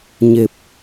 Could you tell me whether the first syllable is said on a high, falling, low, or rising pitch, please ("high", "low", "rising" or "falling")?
low